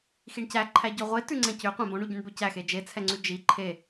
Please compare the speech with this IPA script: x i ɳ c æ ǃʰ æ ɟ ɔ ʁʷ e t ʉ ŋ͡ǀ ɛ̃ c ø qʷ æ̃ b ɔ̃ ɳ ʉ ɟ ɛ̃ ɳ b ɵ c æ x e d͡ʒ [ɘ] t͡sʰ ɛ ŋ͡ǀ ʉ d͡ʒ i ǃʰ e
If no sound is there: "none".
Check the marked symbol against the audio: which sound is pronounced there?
e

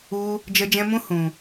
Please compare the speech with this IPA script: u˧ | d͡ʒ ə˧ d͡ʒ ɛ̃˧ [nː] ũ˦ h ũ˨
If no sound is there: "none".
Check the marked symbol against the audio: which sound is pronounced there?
m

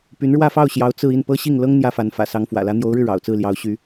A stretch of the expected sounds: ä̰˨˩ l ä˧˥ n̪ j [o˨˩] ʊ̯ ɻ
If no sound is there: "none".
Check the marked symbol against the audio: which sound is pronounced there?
o˧˥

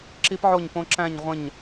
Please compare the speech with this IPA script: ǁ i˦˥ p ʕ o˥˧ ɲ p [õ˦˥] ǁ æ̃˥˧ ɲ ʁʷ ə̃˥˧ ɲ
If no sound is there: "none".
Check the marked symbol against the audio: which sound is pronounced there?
õ˦˥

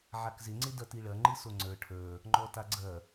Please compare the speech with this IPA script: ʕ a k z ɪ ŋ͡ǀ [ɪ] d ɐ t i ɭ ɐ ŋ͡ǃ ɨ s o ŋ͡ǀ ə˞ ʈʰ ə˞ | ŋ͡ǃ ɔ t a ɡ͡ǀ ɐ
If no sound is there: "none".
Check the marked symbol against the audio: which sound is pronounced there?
ɪ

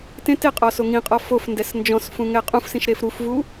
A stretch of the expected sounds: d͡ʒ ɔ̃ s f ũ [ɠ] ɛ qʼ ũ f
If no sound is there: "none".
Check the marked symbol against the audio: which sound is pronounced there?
ŋ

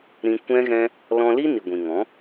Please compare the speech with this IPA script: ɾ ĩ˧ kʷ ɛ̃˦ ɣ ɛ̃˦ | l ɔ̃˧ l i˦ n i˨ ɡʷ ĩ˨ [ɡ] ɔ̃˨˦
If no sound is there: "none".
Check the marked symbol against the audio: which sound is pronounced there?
ŋ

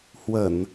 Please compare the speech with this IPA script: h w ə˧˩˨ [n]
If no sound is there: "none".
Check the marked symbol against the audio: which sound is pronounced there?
n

